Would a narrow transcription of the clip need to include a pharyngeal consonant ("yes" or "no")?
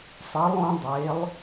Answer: no